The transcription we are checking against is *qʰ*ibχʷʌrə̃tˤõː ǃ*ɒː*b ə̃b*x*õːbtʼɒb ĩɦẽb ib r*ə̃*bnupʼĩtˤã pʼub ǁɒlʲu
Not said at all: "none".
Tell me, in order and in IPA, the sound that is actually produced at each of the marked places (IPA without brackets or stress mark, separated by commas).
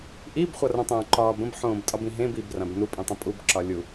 ʔ, ɒː, ħ, ã